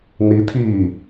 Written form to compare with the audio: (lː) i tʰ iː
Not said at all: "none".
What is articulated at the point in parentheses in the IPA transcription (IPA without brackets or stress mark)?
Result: n